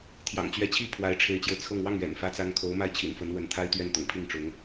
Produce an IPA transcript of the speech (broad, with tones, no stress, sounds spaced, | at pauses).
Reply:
t̪ʰ j ɑ̰˨˩ ŋ t͡ɕ ɥ ɛ˧˥ t͡ɕʰ i˥˩ pʰ w a˧˥ ɪ̯ ʈ͡ʂʰ e˧˥ ɪ̯ t͡ɕ j o˧ ʊ̯ t͡sʰ ɤ˥˧ ŋ w ɑ˥˩ ŋ ɥ ɛ̰˨˩ n f ä˥ t͡s a˥ n kʰ o˧˥ ʊ̯ m a˥˩ ɪ̯ t͡ɕʰ ḭ˨˩ n f ə˧˥ n w ə˧˥ n t̪ʰ a˥ ɪ̯ t̪ ɥ ɛ˥˩ n t̪ ʊ̰˨˩ ŋ pʰ i˥˩ ŋ ʈ͡ʂ ʊ˧˥ ŋ